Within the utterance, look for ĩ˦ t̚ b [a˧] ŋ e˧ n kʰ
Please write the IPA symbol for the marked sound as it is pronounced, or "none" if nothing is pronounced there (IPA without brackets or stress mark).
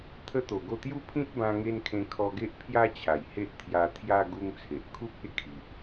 ã˧